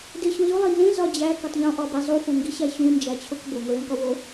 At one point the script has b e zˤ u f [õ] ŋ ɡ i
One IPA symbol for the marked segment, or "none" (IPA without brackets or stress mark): õ